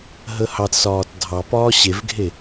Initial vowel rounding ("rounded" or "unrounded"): unrounded